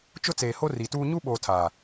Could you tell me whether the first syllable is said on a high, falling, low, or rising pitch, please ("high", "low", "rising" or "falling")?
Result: high